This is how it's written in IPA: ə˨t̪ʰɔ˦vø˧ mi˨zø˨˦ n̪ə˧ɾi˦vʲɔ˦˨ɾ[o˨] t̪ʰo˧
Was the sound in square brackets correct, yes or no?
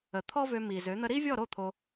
no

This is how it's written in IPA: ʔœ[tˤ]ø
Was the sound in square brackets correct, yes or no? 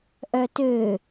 no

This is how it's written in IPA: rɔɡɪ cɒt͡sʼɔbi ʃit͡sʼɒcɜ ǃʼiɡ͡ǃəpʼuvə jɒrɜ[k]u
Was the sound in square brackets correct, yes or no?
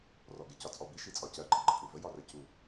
no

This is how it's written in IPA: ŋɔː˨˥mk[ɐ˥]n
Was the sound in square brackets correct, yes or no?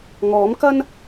yes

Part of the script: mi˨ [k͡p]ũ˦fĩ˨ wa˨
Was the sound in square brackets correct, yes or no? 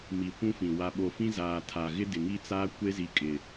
no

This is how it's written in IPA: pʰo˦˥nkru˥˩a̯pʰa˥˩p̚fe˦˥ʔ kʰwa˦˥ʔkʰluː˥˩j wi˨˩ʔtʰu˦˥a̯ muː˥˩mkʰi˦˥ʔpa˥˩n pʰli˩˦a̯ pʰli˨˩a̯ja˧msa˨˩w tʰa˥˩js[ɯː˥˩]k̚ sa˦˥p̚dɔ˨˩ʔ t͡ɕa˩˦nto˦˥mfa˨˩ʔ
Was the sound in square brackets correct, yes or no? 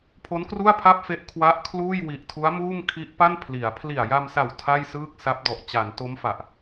yes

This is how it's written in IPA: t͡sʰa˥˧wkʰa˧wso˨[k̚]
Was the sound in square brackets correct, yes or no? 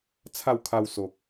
yes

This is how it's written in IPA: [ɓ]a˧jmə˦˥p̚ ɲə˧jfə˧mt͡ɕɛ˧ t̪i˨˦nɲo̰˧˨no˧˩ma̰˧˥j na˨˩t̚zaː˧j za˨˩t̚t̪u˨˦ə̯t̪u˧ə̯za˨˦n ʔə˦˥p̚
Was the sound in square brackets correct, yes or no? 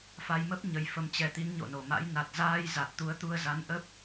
no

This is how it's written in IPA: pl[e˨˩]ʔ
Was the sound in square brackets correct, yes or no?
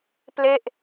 no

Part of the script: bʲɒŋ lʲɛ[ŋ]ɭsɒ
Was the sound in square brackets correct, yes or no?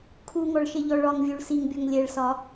no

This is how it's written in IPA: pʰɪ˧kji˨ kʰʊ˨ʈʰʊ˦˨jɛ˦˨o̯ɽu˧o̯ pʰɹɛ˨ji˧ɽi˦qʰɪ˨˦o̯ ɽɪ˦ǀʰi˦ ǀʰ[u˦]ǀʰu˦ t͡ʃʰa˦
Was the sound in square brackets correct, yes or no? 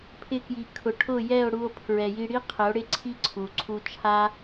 no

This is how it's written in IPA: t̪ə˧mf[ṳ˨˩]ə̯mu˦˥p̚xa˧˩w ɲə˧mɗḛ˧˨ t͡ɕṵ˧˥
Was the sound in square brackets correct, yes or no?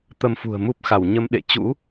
yes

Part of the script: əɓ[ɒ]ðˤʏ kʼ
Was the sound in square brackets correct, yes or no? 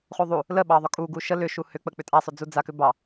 no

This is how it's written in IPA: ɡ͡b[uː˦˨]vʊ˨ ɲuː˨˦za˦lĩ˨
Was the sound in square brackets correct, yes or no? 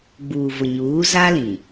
no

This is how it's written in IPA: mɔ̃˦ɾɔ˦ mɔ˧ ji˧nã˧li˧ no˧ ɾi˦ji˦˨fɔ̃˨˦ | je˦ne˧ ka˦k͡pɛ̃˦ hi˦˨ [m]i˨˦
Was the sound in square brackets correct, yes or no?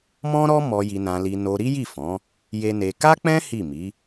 yes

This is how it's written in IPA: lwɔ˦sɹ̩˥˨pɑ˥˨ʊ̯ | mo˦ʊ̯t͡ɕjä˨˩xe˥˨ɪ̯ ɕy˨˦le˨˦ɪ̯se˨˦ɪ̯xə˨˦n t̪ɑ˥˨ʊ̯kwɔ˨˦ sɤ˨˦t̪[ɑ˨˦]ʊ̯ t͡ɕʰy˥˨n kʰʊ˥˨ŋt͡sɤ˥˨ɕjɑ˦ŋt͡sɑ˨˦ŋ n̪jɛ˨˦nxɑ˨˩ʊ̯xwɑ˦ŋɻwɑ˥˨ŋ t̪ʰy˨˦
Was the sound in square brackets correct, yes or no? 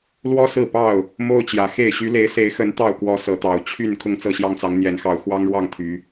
no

